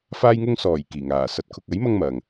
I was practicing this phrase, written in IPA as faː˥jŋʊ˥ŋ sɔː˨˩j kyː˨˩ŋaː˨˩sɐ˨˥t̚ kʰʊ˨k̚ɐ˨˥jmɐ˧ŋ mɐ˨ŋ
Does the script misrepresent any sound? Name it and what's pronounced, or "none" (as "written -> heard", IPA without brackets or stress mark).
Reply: yː˨˩ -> iː˨˩